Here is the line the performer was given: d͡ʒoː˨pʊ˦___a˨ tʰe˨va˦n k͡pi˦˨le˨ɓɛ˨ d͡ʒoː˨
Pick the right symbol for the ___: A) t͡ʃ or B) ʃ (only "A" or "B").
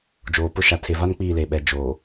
B